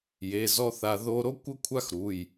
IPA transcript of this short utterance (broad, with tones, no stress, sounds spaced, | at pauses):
j e˩˧˩ z ɔ˦˥ θ a˧ ð o˦˥ ɾ o˦˥ kʷ ə˦˥ kʷʰ a˦˥ x ɾ u˩˧˩ j